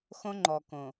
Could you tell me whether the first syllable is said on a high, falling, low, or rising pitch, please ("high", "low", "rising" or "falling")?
high